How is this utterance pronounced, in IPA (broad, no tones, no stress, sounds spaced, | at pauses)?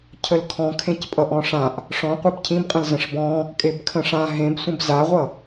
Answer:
cʰ ə l kʰ ɔ̃ kʰ ẽ c pʼ ʌ ʔ ɔ̃ ʂ ã ʔ | ʂ ɔ̃ qʷ e b cʰ ĩ b qʼ ə̃ l z ə̃ ʂ b ɔ̃ | kʼ e b kʰ ə̃ ʂ ã ɦ ẽ b sʷ ə̃ b z a ʁʷ ʌ